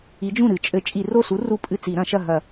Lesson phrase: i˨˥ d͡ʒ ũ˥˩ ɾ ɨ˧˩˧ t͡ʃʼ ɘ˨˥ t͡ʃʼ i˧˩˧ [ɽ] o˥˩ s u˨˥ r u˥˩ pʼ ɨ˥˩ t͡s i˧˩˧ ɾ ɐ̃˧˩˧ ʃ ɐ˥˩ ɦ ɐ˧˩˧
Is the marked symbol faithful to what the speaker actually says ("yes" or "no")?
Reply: no